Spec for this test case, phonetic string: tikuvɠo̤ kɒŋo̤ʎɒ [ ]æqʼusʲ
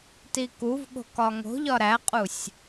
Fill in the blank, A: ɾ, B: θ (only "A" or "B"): A